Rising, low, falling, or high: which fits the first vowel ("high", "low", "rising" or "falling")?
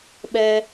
low